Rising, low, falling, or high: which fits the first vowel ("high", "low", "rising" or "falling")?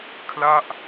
falling